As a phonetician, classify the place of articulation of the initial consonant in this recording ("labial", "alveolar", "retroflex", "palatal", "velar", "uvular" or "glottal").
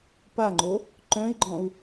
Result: labial